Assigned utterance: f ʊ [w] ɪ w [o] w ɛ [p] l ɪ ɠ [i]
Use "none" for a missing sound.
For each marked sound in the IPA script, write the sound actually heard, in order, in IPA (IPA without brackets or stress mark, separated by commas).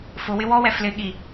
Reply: w, ɔ, f, i